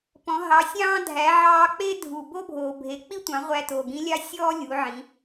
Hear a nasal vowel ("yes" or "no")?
yes